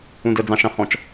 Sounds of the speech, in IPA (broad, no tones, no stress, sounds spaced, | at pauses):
ũ d ə d͡z ɑ̃ ʃ ɑ̃ h ɔ̃ t͡ʃ